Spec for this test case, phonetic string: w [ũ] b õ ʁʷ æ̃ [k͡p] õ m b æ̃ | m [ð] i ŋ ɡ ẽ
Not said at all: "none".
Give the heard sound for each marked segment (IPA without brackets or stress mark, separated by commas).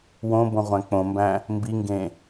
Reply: õ, k͡p, b